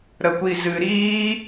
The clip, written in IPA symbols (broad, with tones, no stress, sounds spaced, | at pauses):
ɾ ə˧ kʷ i˧ z ɨ˧ ɾ iː˦